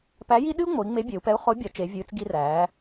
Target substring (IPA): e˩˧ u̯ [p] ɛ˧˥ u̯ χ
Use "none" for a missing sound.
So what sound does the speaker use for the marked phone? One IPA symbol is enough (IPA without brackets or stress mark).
p